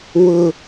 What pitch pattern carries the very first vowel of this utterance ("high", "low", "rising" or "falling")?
low